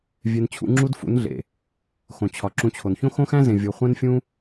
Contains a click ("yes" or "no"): yes